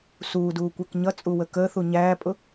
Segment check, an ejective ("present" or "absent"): present